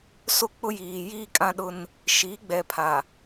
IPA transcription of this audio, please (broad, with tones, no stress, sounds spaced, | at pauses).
s o˦ k͡p ʊ˦ j iː˨ j iː˦ kʼ ã˦ ɗ ʊ˦ n | ʃ i˨˦ ɡ͡b ɛ˨ pʰ a˨